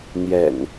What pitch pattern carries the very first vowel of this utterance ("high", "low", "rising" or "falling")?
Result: low